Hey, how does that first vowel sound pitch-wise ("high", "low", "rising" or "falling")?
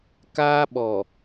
high